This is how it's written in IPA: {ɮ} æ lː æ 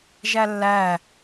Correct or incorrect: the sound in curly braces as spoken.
incorrect: ʒ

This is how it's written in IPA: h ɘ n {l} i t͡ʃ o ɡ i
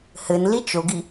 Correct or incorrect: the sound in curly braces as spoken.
correct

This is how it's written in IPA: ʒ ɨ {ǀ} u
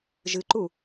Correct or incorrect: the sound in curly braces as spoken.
incorrect: ǃ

